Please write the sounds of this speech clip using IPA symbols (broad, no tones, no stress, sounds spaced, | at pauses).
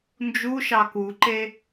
n d͡ʒ u ʃ ɑ k u ǃ e